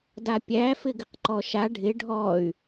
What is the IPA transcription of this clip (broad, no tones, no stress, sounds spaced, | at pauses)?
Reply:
d a pʲ æ f ɪ ɡ ɪ q ǃ ɔ ʃ a ɖʱ ɪ ɖʱ ɔ y̯